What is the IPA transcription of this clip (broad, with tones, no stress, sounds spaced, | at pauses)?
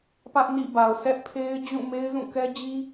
p ä˦ ʔ n ḭ˦˨ b a˨ ʊ̯ sʰ ɛ˦ ʔ pʰ e˦ ɪ̯ d͡ʑ ũ˦˨ m e˦ ɪ̯ z ũ˦˨ k ɛ˦ d͡ʑ i˦